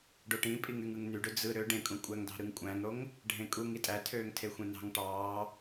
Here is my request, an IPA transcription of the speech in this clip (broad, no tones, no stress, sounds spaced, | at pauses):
ɖ o ʈ ĩ pʼ i ŋ y ŋ ɯ ŋ n y ɖ ø d͡z ɯ ɾ ø ɖ ẽ kʼ ũ kʷʼ æ ŋ d ɑ̤ ɾ ɯ ŋ kʷʼ æ̃ ŋ ɽ o ŋ | ɖʱ ẽ kʼ u ŋ i tʼ æ tʰ øː ŋ tʰ e xʷ ẽ n ɑ̤ ŋ ʈ ɑː